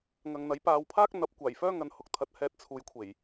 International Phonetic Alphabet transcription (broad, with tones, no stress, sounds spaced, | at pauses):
ŋ ɐ˨ ŋ n̪ ɐ˨˥ j p aː˧ w pʰ aː˥ k̚ n̪ ɐ˨˥ p̚ kʷ aː˨˩ j f œː˥ ŋ ɐ˨ n h ʊ˨ k̚ t̪ʰ ɐ˨˥ t̚ h ɛː˧ t̚ t͡sʰ uː˨˧ j kʷʰ e˨˩ j